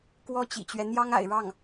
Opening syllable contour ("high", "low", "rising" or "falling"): high